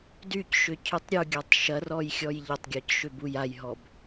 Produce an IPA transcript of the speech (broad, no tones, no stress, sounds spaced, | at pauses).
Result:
d y c ʃ ʏ cʰ y tˤ ɾʲ u ɡʲ a tˤ ʃ ɐ r ɔ j xʲ ɔ j ʎ ɐ tˤ ɡʲ ɔ c ʃ ʏ b u j a j ɦ ɔ b